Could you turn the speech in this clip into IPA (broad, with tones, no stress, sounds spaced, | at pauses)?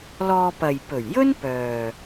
l ɔː˧ p ɐ˨ j p ɵ˨˩ ɥ j ɵ˥ n p œː˨